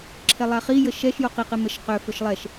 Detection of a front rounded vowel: present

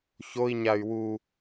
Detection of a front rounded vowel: present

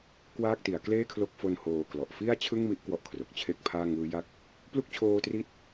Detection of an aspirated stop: present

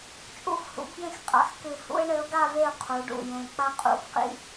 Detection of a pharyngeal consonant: absent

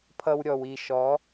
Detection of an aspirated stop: present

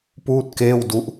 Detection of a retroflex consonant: absent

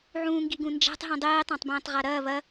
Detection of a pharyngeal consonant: present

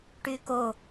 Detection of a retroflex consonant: present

